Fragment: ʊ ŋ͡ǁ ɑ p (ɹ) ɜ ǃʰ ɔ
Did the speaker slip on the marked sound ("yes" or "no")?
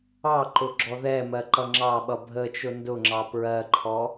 no